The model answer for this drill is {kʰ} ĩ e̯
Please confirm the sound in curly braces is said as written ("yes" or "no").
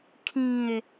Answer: yes